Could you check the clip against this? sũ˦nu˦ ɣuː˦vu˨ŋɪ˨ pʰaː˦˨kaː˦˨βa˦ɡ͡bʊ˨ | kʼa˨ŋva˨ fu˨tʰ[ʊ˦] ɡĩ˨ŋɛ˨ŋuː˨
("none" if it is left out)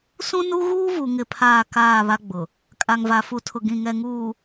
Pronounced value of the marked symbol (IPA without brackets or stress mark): ʊ˨